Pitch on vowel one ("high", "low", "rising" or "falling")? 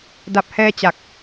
low